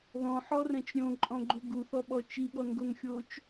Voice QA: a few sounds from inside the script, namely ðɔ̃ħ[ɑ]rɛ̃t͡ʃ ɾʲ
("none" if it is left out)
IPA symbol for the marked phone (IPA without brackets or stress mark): ɔ